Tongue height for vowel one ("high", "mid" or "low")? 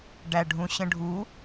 low